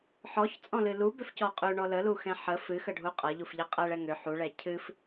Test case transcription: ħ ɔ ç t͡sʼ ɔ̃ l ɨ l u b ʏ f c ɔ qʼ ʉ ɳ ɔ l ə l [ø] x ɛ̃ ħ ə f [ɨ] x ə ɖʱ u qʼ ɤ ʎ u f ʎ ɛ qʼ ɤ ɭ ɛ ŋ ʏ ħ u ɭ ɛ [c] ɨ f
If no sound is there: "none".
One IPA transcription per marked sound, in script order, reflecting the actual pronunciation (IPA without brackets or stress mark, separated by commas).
u, ɨ, cʰ